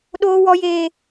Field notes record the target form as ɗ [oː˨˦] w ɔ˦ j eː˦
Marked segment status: incorrect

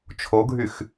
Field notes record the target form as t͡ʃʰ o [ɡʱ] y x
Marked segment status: correct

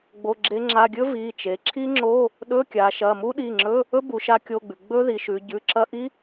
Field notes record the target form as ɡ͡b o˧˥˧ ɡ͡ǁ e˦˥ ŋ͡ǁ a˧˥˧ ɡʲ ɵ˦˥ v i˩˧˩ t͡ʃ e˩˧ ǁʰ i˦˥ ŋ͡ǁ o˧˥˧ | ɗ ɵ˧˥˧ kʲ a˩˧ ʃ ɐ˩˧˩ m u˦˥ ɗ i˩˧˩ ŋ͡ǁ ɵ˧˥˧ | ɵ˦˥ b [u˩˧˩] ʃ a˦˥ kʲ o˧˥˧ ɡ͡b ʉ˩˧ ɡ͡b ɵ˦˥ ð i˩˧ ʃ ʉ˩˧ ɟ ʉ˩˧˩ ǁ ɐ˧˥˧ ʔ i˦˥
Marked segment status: incorrect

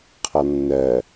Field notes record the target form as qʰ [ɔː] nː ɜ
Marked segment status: incorrect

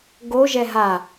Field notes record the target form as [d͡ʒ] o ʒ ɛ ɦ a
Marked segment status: incorrect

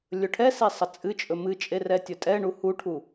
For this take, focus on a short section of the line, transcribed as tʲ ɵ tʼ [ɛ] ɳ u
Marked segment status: correct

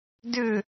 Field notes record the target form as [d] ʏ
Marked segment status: correct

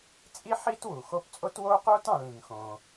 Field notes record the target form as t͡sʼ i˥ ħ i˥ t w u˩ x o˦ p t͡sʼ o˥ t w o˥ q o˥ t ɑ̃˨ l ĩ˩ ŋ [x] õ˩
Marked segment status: correct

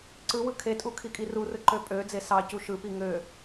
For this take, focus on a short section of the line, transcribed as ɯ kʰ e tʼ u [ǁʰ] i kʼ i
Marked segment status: incorrect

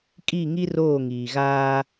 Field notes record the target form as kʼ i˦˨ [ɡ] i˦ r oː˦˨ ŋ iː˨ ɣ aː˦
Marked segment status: incorrect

